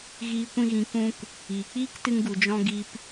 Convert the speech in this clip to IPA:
ɣ iː˧ kʷ ĩ˧ ɣ ĩ˨˦ k ũ˧ k | iː˨ k͡p iː˦ k t ɨ˧ ŋ ɡ u˨ d͡ʒ ɔ̃˧ ɡ i˧ p

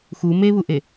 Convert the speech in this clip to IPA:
x u m e β u ʔ e

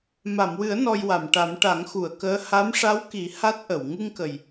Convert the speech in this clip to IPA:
m a˨˩˨ m w ɨ˨˩˦ ə̯ n ɔ˧ j w a˨˩˨ m ʈ a˨˩˦ m ʈ a˨˩˦ ŋ x u˨˩˨ ə̯ k əː˧˥ h a˧˥ m ʂ a˧˥ w k i˨˩˦ h a˦˥ t̚ ʔ ə˨˩˨ w ŋ ɨ˧ ŋ k ə˨˩ j

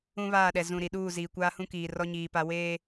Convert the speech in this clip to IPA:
ũ˦ β aː˦˨ ɗ ɛ˨ z ũ˨ ɾ i˨ ɗ uː˦˨ z iː˨ kʷ aː˦ h ũ˦ k iː˨ r ɔ˦ ɲ iː˨ p a˦ w eː˦

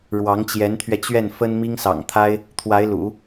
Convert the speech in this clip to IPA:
ɻ w ɑ˧˥ ŋ t͡ɕ j ɛ˧˥ n t̪ʰ ɥ ɛ˧ t͡ɕ ɥ ɛ˥˩ n f ə˥ n m i˥ ŋ s ɑ̰˨˩ ŋ t̪ʰ a˥ ɪ̯ | t̪ʰ w a˧˥ ɪ̯ l ṵ˨˩˦

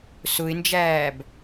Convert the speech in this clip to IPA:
s ʊ ɪ̯ n d͡ʒ æː b

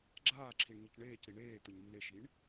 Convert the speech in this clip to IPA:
ɡ͡ǁ aː ǁʰ i ɳ ɲ ɪ c ɳ eː c ɾ i ɳ eː t̪ ʊ ɲ nː e ʃ i ɳ

